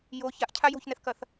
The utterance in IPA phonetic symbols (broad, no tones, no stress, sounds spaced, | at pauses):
j o ç a ʔ cʰ a j o̤ ç n ɛ θ k ɐ θ